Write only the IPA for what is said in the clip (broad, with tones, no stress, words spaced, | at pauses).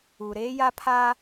u˨ ɾeː˦ja˦pʰaː˦